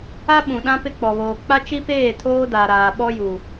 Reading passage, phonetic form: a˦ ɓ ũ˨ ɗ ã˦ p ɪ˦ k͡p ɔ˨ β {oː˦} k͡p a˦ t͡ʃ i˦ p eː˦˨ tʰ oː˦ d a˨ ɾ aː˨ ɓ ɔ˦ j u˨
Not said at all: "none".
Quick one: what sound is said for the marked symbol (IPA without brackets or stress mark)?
oː˨